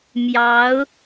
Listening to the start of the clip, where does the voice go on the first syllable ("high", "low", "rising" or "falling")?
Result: rising